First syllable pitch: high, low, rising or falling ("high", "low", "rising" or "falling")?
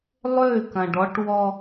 falling